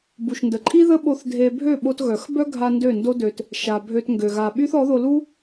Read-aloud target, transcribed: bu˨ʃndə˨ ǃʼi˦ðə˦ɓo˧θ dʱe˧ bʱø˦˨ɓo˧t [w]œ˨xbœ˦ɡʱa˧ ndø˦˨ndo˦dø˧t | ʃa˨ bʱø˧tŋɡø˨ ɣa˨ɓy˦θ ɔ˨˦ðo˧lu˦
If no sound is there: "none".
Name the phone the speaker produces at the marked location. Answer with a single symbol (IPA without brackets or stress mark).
ɣ